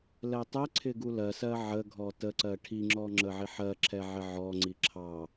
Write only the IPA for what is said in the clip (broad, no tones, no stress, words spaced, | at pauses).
lɛtˤɛǀʰɪ ɡulɜsɜ ʕəɡʱɔ təǀɜ ʈʰiŋ͡ǁɔ ŋ͡ǁəʕiħɜǁʰɛ ʕɪʕɔŋ͡ǀi ǁʰɑ